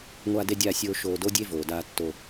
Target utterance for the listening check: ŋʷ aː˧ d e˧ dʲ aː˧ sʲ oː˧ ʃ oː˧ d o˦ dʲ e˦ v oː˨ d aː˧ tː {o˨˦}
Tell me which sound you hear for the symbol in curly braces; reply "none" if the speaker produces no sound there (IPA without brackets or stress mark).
o˧